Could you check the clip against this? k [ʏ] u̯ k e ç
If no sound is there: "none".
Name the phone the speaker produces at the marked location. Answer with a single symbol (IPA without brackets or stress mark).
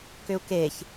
ʏ